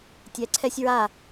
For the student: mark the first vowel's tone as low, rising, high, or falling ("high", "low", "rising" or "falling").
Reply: rising